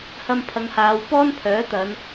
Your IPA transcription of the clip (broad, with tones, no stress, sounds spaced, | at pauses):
h ɐ˧ m pʰ ɐ˨˧ ŋ h aː˨˧ w p ɔː˥ n pʰ œː˨˥ t̪ ɐ˨˧ n